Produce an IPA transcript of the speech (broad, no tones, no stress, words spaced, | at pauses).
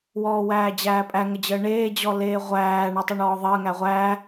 wɔːwæːd͡ʑæːpʼæ ŋəd͡ʑəːɳeː d͡ʑɔleːʁʷæː ɳetˤeɳɔːðˤəː ŋæʁʷæː